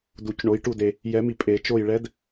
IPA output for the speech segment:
d u˨˩˦ c ɳ o˨˦ j ʈ u˦˨ d e˨ | j ɛ˨˩˦ m i˨ pʼ e˨˩˦ t͡ʃ o˦˨ j ɭ ɛ˨˦ d

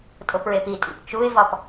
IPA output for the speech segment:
tʼ o p ɹ e p i tʼ ḭ p t͡ʃ u ɪ̯ v ɒ p

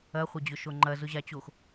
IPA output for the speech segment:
ɐ χʷ ɐ d͡ʑ ʊ ʃ o ŋ͡ǃ ɐ z ʊ ʑ a t͡ɕ o x

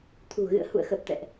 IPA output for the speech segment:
t̪ʰ ṳ˨˩ ɣ ɨ̰˧˨ ə̯ h ṵ˧˨ ə̯ x ə˨˩ p̚ t̪ ɛ̰˧˨ ʔ

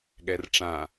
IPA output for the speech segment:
ɠ ɛ r ʈ͡ʂ ã

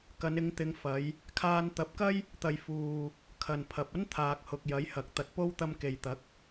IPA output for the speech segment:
k ɐ˨˧ n ɪ˨˧ ŋ t̪ ɪ˨˧ ŋ f ɐ˨˧ j | kʰ aː˧ n t̪ ɐ˨˥ p̚ k ɐ˥ j | t̪ ɐ˨ j f uː˨ | kʰ ɐ˨ n pʰ ɐ˨ p̚ ɐ˥ n t̪ʰ aː˨ k̚ h ʊ˨ k̚ j ɐ˨˥ j h ɐ˨ k̚ t̪ ɐ˧ t̚ p o˥ w t̪ ɐ˧ m k e˨ j t̪ ɐ˨˥ k̚

